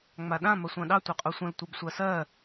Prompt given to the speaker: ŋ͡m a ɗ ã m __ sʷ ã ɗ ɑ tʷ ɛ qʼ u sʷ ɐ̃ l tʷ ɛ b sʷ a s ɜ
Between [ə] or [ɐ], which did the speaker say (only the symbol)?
ɐ